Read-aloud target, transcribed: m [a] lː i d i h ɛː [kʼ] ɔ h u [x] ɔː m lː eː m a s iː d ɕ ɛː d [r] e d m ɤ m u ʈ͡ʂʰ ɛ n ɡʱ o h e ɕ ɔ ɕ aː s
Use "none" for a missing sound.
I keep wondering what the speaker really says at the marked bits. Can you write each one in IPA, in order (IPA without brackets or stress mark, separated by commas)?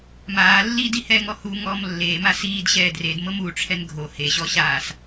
aː, ŋ, ŋ, r